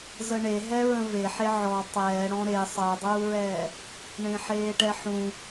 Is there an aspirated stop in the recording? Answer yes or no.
no